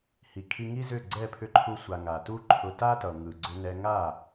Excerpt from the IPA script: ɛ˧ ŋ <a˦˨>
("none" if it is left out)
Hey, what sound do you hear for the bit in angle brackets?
a˦˨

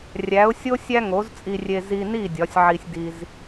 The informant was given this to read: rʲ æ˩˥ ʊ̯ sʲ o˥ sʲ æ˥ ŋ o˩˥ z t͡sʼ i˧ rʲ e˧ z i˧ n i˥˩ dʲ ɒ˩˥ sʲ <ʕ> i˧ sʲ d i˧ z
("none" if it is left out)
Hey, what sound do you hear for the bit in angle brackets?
ʕ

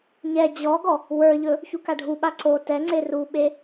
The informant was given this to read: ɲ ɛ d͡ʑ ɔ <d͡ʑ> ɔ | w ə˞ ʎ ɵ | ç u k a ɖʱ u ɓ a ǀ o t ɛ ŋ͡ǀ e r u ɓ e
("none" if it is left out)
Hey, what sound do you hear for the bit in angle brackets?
ɡ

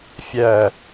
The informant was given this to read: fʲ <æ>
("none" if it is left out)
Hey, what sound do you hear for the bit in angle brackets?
æ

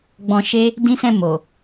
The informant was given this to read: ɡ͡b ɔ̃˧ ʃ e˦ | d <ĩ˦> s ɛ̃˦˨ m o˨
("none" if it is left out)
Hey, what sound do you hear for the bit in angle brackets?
ĩ˦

